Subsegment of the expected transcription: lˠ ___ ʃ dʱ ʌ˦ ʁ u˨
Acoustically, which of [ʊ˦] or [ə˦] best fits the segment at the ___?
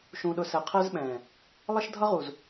ə˦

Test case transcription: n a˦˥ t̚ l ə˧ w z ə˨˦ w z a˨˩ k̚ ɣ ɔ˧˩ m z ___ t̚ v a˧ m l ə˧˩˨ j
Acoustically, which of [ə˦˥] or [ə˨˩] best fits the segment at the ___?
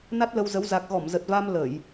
ə˨˩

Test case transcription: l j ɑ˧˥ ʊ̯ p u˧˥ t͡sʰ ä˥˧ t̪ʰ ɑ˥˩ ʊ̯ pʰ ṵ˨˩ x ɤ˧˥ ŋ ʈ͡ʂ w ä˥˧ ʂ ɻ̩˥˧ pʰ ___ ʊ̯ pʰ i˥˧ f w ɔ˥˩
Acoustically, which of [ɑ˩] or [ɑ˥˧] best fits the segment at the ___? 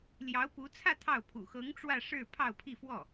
ɑ˥˧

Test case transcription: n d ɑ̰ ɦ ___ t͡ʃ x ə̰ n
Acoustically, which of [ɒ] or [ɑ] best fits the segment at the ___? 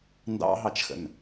ɑ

